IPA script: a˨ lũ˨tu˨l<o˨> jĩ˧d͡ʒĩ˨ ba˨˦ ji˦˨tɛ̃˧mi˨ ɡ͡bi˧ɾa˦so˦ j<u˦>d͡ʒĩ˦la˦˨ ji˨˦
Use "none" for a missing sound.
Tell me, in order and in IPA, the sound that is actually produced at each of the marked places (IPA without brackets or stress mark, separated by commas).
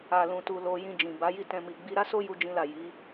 o˨, u˦